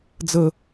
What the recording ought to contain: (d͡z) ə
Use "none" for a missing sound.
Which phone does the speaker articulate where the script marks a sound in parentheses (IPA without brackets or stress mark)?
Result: d͡z